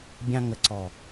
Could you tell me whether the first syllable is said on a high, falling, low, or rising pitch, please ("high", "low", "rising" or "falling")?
high